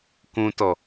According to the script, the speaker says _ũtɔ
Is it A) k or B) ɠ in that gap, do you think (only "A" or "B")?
A